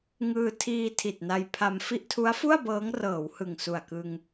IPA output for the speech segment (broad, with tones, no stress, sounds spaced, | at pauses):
ŋ ɯː˧ tʰ iː˧ tʰ i˨˩ t̚ n a˧ j pʰ a˧ m f i˥˩ ʔ tʰ u˦˥ a̯ f u˥˩ a̯ b ɤː˦˥ ŋ r ɤː˩˦ w h ɯ˨˩ ŋ s u˨˩ a̯ k ɯ˧ ŋ